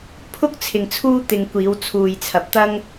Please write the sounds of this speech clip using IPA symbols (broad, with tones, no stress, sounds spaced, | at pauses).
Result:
pʰ ʊ˥ k̚ t͡sʰ ɪ˨ ŋ t͡sʰ uː˥ t̪ ɪ˨ ŋ kʷ iː˨˧ w t͡sʰ uː˨ j t͡sʰ ɐ˨ p̚ t̪ ɐ˥ ŋ